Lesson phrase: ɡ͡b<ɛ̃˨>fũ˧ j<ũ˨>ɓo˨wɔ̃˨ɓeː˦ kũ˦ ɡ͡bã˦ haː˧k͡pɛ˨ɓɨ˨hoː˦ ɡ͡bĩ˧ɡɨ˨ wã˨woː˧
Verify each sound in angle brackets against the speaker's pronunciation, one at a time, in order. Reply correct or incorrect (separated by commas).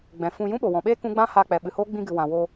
correct, incorrect